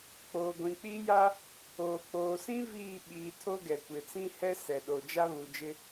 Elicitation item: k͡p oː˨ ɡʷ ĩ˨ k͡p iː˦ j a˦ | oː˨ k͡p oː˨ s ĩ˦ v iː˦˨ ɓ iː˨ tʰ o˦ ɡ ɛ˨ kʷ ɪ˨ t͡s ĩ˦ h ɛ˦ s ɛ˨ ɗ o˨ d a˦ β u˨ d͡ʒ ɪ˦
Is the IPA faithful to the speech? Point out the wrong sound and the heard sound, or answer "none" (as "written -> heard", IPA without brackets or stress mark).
d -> d͡ʒ